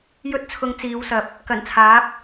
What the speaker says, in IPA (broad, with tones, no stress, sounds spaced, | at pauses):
j ɵ˧ t̚ t͡sʰ ʊ˨˧ ŋ t͡s iː˨˧ w s ɐ˨ p̚ | k ɐ˨˩ n t͡sʰ aː˨˥ p̚